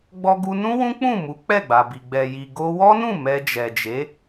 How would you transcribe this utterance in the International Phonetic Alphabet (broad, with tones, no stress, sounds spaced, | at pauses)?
ɡ͡b ɔ˧ ɡ u˧ n ũ˦ w ũ˦ k͡p ũ˦˨ m u˨˦ k͡p ɛ˦˨ ɡ͡b a˨ b i˨ ɡ͡b ɛ˨ j i˨ ɡ o˧ w ɔ˦ n ũ˦˨ m ɛ˧ d͡ʒ ɛ˨ d͡ʒ e˨˦